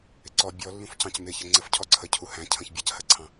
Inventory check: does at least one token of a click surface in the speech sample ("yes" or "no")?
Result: yes